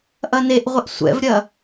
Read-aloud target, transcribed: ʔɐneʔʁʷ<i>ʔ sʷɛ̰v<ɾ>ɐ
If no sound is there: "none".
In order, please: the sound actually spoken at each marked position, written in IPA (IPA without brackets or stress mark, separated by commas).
e, ɾʲ